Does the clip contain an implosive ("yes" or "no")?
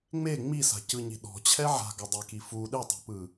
yes